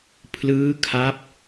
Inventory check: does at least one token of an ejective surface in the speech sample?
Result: no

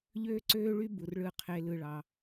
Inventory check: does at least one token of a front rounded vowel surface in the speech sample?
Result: yes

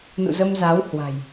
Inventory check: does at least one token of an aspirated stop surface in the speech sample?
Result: no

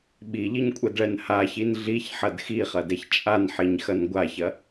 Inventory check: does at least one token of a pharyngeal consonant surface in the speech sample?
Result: yes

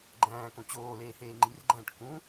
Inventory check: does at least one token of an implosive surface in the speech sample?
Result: no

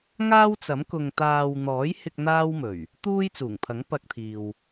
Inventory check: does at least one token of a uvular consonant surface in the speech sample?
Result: no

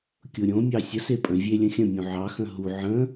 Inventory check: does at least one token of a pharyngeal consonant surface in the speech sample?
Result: yes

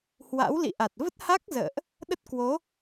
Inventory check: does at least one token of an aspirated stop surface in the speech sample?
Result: no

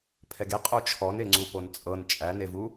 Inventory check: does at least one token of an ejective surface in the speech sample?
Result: yes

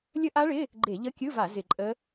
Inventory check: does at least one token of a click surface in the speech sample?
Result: yes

